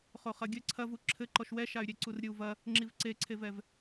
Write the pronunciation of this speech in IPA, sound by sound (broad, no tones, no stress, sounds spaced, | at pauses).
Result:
χ o χ ɐ ɡʲ ɘ ǀʰ ɐ v u ǁʰ ɘ ǃ ɔ ʃ w ɛ ʃ a y̯ ɾʲ e ǀ u r ɾʲ ɨ u̯ v ɐ | ŋ͡ǁ i v ǀ e ǀʰ e v ɛ v